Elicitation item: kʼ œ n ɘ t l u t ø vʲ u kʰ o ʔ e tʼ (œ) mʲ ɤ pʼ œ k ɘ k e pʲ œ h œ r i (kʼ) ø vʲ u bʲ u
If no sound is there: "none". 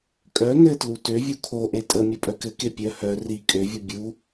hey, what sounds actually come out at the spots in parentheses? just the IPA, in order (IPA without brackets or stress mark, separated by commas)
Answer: ə, kʼ